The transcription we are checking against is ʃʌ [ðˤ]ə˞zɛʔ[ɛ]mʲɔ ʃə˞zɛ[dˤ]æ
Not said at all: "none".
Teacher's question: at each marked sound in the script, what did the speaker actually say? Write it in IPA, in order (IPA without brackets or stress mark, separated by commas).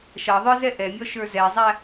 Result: ðˤ, ɛ, zˤ